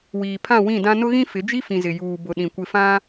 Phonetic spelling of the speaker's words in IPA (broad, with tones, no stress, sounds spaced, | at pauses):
w iː˨ pʰ ã˦˨ w ĩ˦˨ d ã˦ n ʊ˦ ɣ ĩ˦ f ɪ˨˦ d͡ʒ i˦ f ĩ˨ z ɪ˨ j uː˨ b ʊ˨ ɗ ĩ˨ kʷ ɪ˨ f ã˦